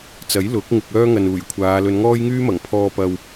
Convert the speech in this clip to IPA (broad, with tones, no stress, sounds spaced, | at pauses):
t͡s ɐ˨˥ j l ʊ˨˥ k̚ ŋ ɪ˧ k̚ œː˥ ŋ ɐ˨ n uː˨˩ j kʷʰ aː˨˧ l ɵ˨˧ n ŋ ɔː˥ j ŋ yː˥ m ɐ˨˩ ŋ pʰ ɔː˧ p ɐ˨ w